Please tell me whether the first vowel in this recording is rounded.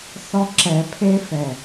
yes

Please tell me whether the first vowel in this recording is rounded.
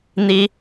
no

